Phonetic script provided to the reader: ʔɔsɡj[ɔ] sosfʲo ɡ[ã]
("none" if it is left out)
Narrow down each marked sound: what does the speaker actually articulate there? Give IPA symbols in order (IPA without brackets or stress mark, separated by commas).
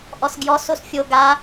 ɔ, a